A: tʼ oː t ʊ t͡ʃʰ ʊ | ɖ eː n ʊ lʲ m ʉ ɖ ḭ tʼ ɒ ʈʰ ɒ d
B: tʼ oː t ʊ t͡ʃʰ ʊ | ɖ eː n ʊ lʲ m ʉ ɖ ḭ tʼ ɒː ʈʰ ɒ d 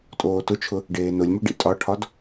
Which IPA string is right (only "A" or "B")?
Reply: A